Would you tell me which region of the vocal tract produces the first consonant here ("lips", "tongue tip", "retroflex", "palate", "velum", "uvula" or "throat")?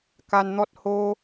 velum